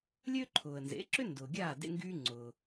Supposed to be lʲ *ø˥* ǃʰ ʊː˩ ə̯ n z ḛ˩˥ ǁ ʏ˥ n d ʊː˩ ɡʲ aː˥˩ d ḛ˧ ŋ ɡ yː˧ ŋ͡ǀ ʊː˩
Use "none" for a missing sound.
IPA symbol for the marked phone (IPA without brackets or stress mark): ø˥